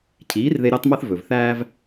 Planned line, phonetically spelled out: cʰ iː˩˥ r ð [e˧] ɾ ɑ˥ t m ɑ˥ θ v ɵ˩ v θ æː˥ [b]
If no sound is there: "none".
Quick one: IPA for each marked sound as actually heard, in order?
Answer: e˧, v

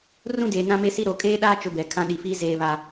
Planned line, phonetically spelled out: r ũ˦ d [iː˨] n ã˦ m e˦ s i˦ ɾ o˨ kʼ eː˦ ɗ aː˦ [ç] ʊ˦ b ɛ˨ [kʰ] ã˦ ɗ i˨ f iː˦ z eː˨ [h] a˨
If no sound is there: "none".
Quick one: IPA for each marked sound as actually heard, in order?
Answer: eː˨, t͡ʃ, kʰ, β

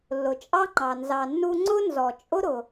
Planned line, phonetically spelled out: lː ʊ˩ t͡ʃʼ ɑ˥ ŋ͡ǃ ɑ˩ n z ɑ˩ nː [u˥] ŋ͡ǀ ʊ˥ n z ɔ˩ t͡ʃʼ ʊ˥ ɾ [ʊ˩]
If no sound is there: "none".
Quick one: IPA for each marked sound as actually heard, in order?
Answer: u˥, ʊ˩

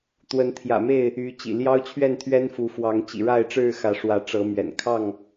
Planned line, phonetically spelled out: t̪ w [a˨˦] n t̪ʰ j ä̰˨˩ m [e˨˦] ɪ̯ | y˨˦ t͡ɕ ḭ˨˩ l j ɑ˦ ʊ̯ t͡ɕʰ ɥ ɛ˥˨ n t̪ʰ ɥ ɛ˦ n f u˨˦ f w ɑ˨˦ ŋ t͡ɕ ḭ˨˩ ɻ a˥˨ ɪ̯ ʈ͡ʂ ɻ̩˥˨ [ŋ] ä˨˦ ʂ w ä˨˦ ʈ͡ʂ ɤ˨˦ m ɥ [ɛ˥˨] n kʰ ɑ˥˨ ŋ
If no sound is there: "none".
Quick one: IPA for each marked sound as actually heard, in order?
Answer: ə˨˦, e˥˨, x, ɛ̰˨˩

